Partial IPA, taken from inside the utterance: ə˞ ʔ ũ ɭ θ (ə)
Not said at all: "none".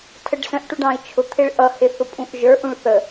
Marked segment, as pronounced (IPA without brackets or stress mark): ə